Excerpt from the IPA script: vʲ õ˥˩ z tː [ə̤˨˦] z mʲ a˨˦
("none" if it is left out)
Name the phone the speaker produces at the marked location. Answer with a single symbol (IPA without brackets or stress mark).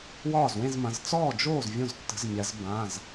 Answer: ə̤˨˦